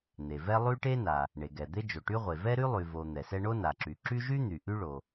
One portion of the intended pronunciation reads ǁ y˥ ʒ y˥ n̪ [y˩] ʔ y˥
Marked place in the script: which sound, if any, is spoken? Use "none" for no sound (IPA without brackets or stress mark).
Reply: y˩